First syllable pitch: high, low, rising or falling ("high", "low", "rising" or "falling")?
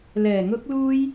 low